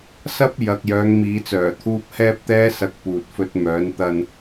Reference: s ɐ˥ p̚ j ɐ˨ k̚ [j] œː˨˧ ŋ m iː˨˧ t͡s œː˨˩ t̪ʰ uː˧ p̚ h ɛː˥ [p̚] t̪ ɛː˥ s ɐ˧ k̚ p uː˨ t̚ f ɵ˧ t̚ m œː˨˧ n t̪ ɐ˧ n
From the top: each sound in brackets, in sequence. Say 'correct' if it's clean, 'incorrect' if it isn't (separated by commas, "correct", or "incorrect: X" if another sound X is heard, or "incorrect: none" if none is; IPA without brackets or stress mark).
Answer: correct, correct